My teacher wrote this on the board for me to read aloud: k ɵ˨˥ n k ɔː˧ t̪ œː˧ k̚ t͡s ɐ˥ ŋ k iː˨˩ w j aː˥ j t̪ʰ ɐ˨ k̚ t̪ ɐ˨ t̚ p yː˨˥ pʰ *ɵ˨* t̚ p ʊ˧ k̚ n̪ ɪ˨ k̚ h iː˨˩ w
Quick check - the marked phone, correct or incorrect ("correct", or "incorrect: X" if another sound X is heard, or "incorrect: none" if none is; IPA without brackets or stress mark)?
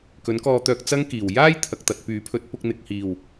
incorrect: ɵ˨˥